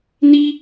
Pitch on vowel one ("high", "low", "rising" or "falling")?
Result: high